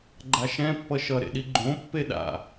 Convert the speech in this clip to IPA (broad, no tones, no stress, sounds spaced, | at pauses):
ɡ͡ǃ a ʃ ɛ̃ pː ʌ ʃ ʌ ɾ ḛ ɗ i ɡ͡ǃ õ pː e ɗ a̰